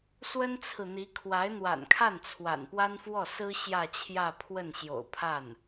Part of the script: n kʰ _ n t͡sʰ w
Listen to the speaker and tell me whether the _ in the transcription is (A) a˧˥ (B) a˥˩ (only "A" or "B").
B